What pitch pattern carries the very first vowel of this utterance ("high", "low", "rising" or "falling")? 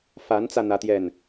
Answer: rising